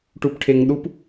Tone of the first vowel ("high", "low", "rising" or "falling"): low